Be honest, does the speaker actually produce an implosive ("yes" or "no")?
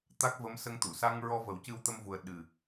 yes